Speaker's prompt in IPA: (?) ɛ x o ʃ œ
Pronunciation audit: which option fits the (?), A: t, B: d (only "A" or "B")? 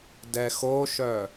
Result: B